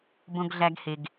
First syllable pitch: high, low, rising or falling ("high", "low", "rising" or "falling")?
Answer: high